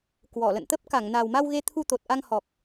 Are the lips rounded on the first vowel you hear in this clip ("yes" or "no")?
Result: yes